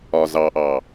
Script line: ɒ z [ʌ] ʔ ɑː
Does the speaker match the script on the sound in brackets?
no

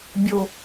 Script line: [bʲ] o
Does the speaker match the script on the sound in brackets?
yes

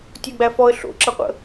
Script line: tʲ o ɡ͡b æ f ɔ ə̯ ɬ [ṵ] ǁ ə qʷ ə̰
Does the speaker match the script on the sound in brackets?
no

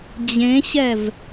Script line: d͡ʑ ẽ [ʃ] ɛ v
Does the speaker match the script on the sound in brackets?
no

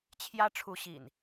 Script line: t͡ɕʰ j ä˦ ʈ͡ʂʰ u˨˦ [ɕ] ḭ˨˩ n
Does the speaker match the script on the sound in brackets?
yes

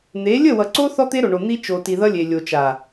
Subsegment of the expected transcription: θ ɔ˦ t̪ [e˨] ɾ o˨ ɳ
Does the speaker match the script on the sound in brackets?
no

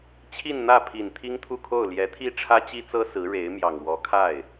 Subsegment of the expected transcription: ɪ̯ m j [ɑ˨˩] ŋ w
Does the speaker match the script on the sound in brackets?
yes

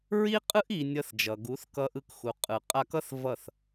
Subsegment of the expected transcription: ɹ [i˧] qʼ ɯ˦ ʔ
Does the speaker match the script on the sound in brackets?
no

